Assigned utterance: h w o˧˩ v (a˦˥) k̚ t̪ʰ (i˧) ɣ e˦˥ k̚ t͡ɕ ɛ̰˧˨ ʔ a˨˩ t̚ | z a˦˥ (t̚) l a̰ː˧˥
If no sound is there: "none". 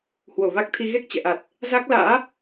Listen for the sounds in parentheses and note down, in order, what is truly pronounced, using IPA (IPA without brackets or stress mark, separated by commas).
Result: a˦˥, i˧, k̚